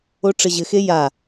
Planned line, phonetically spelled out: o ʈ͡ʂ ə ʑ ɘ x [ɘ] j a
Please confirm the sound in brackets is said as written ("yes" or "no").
no